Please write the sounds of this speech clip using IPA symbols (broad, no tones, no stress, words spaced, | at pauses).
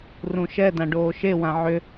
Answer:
rũʃɛdã ɖoːʃewã ʕʏ